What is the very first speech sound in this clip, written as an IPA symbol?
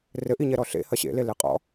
r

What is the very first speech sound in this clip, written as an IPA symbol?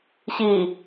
ɕ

